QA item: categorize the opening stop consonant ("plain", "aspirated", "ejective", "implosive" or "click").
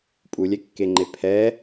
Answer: ejective